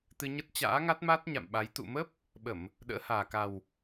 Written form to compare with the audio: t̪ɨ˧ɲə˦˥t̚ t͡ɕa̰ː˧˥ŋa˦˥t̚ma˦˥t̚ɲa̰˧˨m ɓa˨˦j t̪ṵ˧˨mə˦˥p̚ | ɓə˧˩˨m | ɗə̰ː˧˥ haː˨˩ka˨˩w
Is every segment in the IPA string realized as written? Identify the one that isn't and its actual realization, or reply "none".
none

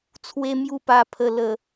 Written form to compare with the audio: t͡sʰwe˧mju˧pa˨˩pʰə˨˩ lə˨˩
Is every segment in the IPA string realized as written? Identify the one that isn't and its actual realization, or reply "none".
none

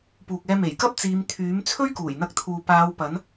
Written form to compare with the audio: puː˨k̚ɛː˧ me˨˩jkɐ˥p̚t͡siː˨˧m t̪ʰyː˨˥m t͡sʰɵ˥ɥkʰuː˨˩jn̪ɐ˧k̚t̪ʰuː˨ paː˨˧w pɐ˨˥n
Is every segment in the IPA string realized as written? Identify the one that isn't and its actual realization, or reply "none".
kʰ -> k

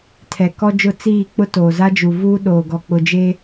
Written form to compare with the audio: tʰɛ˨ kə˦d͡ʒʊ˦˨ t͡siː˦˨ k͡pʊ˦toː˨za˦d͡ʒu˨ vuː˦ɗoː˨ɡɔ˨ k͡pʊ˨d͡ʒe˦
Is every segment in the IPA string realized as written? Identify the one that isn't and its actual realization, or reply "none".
ə˦ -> ɔ˦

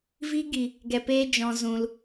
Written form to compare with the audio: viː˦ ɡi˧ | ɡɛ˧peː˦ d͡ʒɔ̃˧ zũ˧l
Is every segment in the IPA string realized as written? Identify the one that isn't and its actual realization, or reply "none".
none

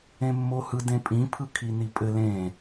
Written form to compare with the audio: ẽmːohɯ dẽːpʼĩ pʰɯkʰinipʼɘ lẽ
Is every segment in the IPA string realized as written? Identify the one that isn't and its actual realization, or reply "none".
ẽː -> ẽ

